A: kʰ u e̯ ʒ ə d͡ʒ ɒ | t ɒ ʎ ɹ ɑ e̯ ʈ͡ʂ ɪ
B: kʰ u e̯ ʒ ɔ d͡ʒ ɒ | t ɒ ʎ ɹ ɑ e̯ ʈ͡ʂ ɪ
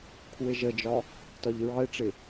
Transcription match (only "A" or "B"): A